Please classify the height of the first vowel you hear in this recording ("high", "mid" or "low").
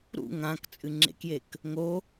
high